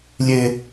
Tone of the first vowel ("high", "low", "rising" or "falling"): high